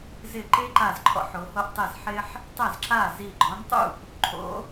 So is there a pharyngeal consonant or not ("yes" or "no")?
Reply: yes